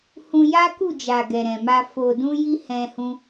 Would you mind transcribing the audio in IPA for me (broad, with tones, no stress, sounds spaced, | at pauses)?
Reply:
h ũ˧ j a˦ k u˦˨ d͡ʒ a˨ ɡ ɛ˨ ɾ ɛ̃˨ m a˧ f o˨ d ũ˧ j i˧ h ɛ̃˧ h ũ˦